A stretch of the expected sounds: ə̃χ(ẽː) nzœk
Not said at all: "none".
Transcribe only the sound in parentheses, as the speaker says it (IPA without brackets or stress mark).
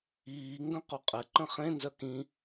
ẽ